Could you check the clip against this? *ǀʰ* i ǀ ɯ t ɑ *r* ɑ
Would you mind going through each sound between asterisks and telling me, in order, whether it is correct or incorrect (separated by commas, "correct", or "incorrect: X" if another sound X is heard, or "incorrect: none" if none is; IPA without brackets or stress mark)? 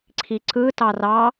correct, correct